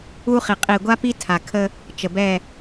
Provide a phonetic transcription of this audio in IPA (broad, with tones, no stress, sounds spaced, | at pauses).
u˦ χ i˨ qʼ i˨ ɡʷ a˦ p i˦ tʰ a˨ kʰ ə˦ | t͡ʃ ə˨ b ɛ˦˨